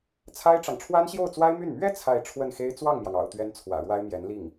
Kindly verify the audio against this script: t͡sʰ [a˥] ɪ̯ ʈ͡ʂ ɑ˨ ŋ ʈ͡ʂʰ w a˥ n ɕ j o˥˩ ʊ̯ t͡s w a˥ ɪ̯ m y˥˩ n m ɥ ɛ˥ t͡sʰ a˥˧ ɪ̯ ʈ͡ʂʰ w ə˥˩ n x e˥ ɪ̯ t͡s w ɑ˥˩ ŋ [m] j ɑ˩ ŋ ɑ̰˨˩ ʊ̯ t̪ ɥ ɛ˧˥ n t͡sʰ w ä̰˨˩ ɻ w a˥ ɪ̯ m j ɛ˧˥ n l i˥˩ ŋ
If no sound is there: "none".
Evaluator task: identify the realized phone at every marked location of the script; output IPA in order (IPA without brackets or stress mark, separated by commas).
a˥, m